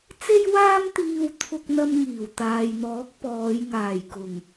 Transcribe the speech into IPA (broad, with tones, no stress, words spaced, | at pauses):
t͡se˥jwaː˥m t̪iː˥wt̪ʰʊ˥k̚n̪ɐ˥mŋiː˨˩w t̪aː˨jn̪ɔː˨˥k̚ pɔː˨˧jŋaː˨˩jkʊ˨˩ŋ